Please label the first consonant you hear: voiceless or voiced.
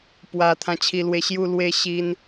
voiceless